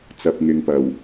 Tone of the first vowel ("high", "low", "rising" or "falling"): low